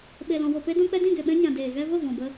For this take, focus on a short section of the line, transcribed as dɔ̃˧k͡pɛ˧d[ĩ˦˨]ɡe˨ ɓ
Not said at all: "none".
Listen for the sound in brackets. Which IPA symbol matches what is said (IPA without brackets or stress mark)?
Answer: ĩ˦˨